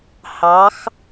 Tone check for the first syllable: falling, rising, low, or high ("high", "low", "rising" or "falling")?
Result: rising